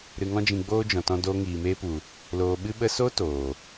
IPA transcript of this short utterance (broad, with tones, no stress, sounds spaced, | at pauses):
ɾ ɨ˧ ŋ ɔ̃˦ d͡ʒ ĩ˧ ɡ͡b oː˦ d͡ʒ ɔ̃˨ t ɔ̃˧ d oː˧ ŋ iː˨ m eː˧ p u˨ | l oː˨ ɓ ɨ˧ ɓ ə˧ s o˦ t oː˨